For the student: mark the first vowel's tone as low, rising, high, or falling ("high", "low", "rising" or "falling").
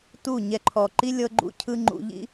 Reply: falling